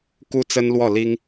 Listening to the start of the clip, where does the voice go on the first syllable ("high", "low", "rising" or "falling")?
high